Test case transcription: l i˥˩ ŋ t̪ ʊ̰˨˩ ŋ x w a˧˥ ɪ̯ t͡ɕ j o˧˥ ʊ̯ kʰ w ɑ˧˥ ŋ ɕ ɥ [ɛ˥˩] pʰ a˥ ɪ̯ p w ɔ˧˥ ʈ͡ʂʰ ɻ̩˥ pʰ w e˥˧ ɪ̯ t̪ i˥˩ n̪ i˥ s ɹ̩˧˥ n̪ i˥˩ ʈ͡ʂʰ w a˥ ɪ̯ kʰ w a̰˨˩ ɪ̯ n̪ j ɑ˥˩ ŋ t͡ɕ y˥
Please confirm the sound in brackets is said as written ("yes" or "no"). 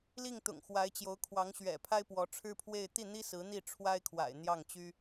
no